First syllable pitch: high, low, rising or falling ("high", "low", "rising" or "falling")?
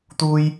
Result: high